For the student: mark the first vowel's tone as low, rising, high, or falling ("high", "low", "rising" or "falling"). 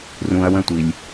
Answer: low